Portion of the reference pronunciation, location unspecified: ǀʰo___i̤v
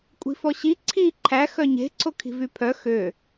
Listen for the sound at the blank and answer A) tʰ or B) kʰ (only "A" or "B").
B